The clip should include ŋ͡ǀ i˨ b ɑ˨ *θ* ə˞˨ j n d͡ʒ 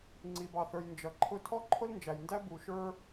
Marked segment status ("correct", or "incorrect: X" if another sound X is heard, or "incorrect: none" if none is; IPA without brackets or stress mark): correct